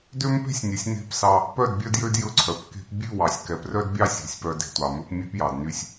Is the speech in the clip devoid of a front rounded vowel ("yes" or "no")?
no